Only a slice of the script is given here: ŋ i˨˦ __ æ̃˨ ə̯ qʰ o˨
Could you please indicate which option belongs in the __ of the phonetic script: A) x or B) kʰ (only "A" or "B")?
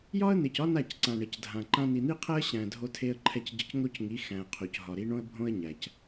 A